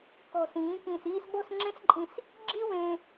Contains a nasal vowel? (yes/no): yes